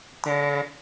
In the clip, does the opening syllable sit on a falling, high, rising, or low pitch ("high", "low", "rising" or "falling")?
high